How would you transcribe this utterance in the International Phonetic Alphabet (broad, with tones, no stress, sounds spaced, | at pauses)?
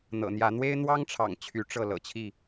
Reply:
n̪ ɤ̰˨˩ n̪ j ä˨˦ n̪ w e˦ ɪ̯ n̪ w ɑ˦ ŋ ʈ͡ʂʰ ɑ̰˨˩ ŋ t͡ɕʰ y˨˦ ʈ͡ʂ ɤ˥˨ l ɤ̰˨˩ t͡ɕʰ i˥˨